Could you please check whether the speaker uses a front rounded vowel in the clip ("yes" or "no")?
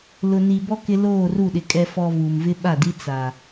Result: no